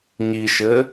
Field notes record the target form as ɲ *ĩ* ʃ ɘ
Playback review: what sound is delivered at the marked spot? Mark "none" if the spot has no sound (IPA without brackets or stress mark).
i